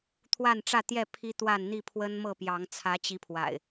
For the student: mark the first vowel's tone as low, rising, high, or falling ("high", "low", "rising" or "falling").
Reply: falling